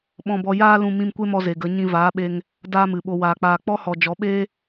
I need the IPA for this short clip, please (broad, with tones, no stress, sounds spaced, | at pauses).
ɓ ɔ̃˧ b ɔ˧ j aː˦ l ũ˧ m ĩ˧ m kʷ e˦ m ɔ˧ z e˨ ɡ ə˨˦ ɲ ĩ˧ v aː˨˦ ɓ e˧ ŋ | d aː˦ m ɨ˨ ɓ o˧ w aː˨ k͡p aː˨ k͡p ɔ˦ h ɔ˨ d͡ʒ ɔ˨˦ ɓ eː˦